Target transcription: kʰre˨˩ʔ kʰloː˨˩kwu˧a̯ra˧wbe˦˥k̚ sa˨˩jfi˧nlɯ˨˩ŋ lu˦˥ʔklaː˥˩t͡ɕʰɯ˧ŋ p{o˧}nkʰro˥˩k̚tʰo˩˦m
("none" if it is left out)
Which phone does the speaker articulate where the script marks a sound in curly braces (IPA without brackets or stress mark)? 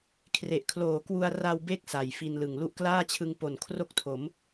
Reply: o˨˩